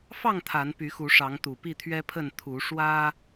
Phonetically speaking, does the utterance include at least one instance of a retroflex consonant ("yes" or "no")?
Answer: yes